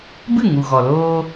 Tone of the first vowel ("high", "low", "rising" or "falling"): falling